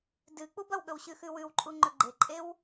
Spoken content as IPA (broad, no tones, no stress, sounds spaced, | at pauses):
d ɨ k͡p u b ɐ w ɠ ɵ w ɕ ʉ x ʉ w ʉ w ǃʼ u ŋ͡ǃ ɵ ɡ͡ǃ e ǃʼ e w